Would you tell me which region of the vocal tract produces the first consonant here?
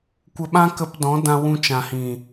velum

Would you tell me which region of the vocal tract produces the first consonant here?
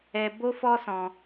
lips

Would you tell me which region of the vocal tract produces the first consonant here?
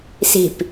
tongue tip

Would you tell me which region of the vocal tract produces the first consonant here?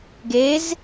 velum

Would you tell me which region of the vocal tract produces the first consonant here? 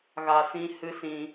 velum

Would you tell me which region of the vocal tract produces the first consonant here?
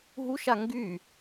throat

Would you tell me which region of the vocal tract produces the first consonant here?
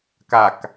velum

